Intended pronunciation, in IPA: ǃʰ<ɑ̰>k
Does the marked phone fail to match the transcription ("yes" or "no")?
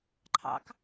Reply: no